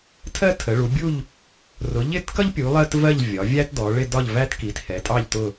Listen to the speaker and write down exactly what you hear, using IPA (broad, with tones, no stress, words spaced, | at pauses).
tʰɜ˥tʰə˩˧ɭu˩˧ bʲu˥˧ʎ | rʊ˩˧ʎɪ˥˧tkʌ˥ʎpʲu˩˧ lˠɜ˥tvɜ˥˧ʎ vʲɒ˩˧vʲæ˥t dɔ˩˧ɭɪ˥˧ dɒ˥˧ʎvæ˥t ki˩˧t hɛ˩˧tʼɑ˥˧ʎtʊ˥˧